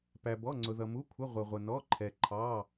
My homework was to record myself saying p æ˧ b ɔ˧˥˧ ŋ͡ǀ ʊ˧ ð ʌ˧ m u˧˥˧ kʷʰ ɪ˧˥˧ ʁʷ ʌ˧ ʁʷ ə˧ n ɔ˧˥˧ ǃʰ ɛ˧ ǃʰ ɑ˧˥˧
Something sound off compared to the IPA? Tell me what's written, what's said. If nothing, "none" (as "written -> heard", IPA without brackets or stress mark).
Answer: none